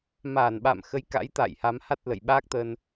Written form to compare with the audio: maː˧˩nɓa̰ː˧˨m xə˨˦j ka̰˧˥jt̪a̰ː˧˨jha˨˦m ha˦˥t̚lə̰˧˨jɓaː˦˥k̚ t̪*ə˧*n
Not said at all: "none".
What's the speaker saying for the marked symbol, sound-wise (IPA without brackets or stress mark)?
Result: ə˧